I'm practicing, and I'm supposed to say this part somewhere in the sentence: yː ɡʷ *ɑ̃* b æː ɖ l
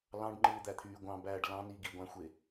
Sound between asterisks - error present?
no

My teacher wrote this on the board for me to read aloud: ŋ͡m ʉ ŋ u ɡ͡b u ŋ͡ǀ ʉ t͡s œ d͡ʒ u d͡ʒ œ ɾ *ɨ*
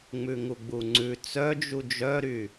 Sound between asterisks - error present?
yes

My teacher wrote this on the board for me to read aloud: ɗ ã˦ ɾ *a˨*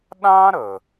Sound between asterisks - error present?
yes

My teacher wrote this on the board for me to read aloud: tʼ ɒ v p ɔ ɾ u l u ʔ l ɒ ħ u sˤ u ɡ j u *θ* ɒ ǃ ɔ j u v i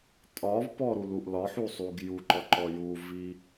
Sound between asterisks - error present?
yes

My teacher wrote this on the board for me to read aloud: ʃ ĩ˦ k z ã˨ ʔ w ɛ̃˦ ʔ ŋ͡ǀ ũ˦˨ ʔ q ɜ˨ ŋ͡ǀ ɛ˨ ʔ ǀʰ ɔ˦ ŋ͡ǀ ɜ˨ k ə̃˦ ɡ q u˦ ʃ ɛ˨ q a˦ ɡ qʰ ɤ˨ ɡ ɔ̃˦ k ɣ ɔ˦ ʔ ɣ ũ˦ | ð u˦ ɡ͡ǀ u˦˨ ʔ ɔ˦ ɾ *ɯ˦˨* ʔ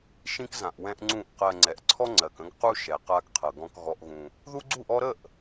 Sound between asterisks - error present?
yes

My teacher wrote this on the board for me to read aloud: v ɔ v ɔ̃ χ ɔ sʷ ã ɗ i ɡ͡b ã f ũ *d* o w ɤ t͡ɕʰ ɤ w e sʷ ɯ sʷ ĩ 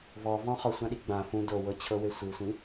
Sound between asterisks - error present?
no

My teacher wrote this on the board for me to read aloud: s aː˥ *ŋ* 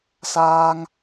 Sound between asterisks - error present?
no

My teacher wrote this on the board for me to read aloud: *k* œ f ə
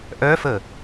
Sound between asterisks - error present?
yes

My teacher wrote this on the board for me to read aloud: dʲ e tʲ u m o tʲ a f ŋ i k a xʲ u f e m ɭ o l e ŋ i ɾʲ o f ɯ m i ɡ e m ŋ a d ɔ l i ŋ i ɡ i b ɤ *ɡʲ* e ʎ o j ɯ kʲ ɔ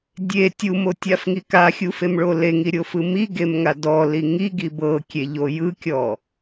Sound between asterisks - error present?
yes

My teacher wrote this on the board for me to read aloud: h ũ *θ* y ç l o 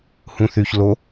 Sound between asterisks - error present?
no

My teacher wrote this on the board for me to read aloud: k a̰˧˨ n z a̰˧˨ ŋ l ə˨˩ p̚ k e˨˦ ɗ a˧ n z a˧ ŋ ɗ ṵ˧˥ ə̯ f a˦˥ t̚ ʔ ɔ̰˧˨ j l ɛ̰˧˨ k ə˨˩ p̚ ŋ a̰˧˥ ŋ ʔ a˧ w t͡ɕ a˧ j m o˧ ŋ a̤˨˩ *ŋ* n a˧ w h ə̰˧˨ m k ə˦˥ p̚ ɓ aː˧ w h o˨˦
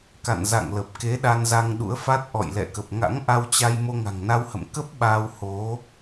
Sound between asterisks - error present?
no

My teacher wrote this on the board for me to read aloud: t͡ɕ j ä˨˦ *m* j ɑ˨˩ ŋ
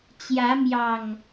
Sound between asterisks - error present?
no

